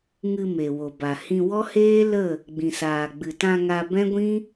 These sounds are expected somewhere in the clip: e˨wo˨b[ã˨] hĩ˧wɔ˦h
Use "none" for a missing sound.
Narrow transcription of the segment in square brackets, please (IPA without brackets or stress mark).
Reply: a˨